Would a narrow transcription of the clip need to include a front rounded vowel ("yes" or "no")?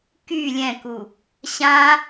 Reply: yes